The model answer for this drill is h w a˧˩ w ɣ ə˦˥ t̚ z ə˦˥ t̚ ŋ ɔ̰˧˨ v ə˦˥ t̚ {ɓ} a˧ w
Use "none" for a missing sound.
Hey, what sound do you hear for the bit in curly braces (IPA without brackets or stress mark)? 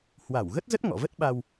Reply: ɓ